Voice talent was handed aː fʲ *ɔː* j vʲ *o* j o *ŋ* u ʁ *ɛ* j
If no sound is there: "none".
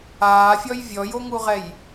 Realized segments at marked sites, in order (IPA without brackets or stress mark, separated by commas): ɔ, ɔ, ŋ, ɛ